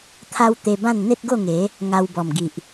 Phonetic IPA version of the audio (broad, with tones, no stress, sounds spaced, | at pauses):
t̪ʰ a˦ w t̪ e˧ b ã˥˧ n n̪ e˦ t̚ ɡ o˥˧ ŋ e˨˦ | ŋ a˧ w b ɔ˨˩ m ɡ i˨ ʔ